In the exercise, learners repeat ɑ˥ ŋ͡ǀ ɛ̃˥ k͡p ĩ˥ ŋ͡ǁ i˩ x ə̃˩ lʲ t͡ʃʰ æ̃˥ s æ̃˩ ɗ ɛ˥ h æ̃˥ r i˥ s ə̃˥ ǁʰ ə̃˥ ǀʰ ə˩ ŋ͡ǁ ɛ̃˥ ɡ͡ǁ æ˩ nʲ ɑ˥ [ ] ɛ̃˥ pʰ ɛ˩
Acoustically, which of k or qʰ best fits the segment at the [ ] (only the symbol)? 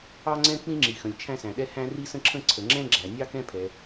k